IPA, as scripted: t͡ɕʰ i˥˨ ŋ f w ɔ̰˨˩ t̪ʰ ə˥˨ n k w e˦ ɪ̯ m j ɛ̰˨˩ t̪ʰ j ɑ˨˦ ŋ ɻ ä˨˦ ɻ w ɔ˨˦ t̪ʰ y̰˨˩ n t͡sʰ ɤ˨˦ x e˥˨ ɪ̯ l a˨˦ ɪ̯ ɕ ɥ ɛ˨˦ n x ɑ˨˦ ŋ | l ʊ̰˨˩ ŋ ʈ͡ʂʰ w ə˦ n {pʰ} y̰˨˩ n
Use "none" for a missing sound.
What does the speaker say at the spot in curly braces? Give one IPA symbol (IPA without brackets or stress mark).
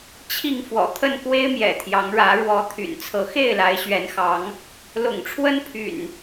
pʰ